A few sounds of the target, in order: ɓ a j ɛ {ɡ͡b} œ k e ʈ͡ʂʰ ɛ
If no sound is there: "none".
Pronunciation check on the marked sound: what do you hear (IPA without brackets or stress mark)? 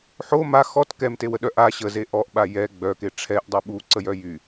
ɡ͡b